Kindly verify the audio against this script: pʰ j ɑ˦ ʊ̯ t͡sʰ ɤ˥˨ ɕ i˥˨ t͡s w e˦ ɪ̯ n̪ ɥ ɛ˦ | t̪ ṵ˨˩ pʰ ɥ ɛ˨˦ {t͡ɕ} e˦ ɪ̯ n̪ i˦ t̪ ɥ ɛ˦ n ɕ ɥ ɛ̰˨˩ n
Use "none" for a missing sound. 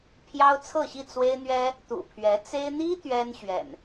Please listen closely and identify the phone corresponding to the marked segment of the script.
t͡s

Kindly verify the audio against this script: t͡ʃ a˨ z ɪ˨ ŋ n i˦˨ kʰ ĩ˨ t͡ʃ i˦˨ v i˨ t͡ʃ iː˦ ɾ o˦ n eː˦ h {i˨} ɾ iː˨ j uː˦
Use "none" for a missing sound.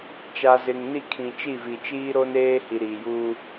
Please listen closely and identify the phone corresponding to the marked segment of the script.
i˨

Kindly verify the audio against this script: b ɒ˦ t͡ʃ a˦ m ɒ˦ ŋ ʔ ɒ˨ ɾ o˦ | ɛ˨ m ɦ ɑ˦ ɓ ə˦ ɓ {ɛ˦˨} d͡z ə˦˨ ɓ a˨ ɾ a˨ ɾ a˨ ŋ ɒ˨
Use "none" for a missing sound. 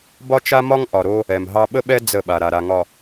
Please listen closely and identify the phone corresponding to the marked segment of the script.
ɛ˦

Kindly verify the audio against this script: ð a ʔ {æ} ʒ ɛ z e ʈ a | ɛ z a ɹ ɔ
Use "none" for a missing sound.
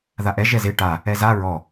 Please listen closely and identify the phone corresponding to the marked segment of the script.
ɛ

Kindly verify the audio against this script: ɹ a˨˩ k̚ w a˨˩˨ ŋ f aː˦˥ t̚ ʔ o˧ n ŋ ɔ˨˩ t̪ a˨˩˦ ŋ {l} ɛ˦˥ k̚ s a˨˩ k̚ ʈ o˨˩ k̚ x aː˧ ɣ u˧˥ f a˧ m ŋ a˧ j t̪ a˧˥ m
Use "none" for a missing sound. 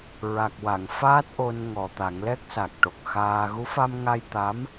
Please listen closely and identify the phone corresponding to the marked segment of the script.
l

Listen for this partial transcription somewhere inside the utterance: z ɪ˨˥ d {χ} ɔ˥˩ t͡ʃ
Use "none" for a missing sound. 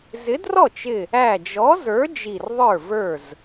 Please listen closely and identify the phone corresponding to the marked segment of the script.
r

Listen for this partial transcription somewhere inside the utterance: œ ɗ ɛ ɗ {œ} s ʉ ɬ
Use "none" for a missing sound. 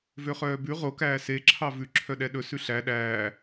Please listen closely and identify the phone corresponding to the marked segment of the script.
ɵ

